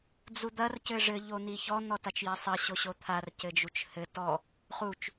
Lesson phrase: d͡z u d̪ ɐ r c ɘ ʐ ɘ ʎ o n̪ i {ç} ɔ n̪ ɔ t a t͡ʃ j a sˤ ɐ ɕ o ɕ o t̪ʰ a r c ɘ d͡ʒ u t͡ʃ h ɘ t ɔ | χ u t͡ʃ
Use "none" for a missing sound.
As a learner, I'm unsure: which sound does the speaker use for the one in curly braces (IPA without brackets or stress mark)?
ç